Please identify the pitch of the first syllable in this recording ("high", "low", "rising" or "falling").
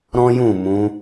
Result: high